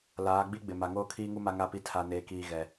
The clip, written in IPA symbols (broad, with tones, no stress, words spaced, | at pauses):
laː˨˦ ɡ͡bi˦ɡ͡bɪ˨ ma˨ŋoː˦kʰiː˦ŋu˦ ma˦ŋa˦˨pi˦ tʰa˨neː˨kiː˨ ɣɛ˨